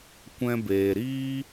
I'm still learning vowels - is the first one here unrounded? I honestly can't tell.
yes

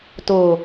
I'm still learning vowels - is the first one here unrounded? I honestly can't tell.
no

